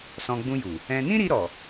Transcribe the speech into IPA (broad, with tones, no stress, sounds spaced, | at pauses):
s ɔ̃˧ ɡ͡b ũ˧ j u˨ | ɛ̃˧ n ĩ˦ ɾ i˧ ɾ ɔ˨